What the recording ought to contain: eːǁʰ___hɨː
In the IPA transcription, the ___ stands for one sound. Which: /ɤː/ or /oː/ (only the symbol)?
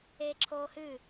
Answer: oː